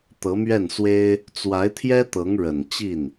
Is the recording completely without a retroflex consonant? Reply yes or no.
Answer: no